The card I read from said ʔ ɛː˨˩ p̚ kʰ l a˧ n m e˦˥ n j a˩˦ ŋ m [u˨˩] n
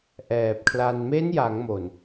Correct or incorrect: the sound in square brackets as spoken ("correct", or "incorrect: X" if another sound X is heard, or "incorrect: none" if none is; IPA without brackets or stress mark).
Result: incorrect: o˨˩